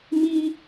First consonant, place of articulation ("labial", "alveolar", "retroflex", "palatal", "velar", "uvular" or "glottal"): labial